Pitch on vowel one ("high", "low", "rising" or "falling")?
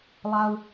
low